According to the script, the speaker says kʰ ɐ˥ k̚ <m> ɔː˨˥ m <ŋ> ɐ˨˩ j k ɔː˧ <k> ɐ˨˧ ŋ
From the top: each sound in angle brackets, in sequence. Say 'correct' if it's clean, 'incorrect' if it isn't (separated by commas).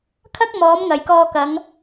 correct, correct, correct